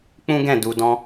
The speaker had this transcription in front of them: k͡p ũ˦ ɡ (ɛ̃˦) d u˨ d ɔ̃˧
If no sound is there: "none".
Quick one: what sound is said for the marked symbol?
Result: ɛ̃˦˨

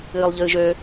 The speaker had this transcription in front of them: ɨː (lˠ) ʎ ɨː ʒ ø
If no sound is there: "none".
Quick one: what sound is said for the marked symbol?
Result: lˠ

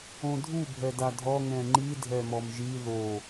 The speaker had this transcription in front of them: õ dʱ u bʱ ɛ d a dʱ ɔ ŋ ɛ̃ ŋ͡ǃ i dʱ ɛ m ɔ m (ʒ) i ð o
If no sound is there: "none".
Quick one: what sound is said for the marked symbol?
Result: ʒ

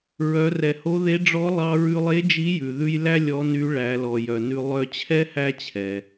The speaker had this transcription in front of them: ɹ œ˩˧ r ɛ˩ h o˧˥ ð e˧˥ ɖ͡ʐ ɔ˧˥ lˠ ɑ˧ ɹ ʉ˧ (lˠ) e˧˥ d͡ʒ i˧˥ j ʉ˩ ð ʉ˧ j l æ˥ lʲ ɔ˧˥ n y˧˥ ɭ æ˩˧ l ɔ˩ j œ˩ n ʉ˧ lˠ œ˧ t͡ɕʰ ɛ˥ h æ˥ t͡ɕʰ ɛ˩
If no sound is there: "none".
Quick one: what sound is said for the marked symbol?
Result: lˠ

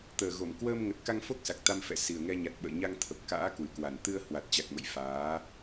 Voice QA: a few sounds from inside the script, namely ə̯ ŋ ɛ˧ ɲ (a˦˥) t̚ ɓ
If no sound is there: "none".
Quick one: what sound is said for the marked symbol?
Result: a˨˩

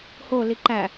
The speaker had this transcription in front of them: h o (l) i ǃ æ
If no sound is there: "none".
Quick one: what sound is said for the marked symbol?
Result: l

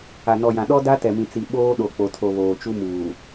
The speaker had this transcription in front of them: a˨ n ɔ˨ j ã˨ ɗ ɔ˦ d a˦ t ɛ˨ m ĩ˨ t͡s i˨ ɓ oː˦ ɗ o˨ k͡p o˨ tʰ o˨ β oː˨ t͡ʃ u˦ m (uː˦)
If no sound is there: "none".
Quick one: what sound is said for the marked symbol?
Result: uː˨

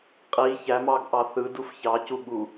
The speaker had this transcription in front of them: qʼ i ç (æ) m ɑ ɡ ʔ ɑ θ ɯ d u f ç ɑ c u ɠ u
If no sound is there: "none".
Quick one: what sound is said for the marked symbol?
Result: æ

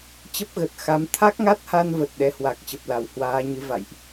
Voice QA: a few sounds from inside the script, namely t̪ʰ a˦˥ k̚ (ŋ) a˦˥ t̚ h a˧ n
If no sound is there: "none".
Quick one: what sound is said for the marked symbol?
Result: ŋ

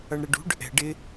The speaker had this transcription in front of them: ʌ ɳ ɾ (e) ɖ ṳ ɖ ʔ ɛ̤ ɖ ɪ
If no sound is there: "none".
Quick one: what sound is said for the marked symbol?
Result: ɛ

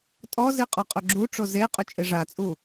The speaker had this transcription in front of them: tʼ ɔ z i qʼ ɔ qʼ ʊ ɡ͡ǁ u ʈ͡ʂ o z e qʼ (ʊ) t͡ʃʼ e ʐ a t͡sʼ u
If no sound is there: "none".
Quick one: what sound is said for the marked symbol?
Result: ʊ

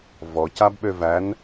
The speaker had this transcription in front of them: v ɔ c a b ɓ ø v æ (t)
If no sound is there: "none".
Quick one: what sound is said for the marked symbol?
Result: n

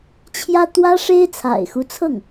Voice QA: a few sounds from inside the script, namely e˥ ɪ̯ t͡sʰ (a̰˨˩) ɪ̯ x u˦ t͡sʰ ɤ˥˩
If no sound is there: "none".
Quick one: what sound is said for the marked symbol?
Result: a̰˨˩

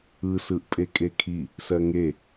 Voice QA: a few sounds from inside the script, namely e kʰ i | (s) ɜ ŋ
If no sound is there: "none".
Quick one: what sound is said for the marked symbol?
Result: s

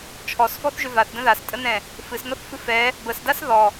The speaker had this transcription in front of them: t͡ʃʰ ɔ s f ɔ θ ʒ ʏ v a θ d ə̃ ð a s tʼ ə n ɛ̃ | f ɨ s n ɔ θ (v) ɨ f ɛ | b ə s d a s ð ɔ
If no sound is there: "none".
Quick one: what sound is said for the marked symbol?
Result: f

